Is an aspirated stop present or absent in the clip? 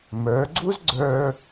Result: absent